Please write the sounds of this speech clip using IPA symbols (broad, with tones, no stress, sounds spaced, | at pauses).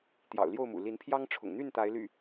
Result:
t̪ j ɑ̰˨˩ ʊ̯ l j o˥˨ ʊ̯ m ṵ˨˩ l i˨˦ n pʰ j ɑ˦ ŋ ʈ͡ʂʰ ʊ̰˨˩ ŋ n̪ y˥˨ n t̪ a˨˦ ɪ̯ l y̰˨˩